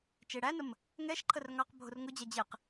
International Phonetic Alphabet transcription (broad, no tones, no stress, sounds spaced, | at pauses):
t͡ʃ e ɽ æ n ə m | ŋ ɛ ʃ ǃʰ ə r ŋ ɑ q bʱ ʊ r ŋ ʊ d͡ʑ æ d͡ʑ e q